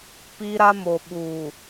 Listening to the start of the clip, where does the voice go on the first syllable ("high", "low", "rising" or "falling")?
high